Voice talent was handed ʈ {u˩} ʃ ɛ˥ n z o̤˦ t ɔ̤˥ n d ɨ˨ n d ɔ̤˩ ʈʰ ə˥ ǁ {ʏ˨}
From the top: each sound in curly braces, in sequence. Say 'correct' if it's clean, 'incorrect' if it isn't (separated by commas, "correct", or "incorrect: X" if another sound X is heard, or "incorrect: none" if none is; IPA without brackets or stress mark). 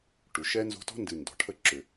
correct, correct